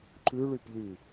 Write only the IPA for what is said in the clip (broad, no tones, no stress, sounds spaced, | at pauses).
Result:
ǃ ʉ ɭ y p ʎ y